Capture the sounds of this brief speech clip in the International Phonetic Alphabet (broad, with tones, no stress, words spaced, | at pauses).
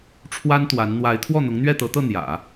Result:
ʈ͡ʂʰwa˥nt̪wa˧˥n n̪wa˧˥ɪ̯ t̪ʰwɔ˥˩n̪ʊ˧˥ŋ n̪ɥɛ˥˩t̪ɤ˧˥t̪ɤ˥˩ n̪jä̰˨˩˦